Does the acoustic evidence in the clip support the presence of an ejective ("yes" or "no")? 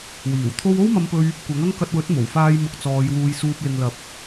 no